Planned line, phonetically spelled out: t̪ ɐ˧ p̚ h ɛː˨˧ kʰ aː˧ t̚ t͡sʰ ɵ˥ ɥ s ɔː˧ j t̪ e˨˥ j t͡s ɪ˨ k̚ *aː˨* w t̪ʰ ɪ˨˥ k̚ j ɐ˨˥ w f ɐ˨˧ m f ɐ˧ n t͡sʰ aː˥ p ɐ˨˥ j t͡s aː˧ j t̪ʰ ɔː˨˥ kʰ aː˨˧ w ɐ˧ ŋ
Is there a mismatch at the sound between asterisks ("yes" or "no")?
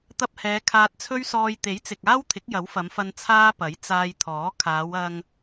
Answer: yes